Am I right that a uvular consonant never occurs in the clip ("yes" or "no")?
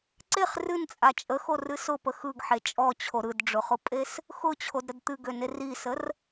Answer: no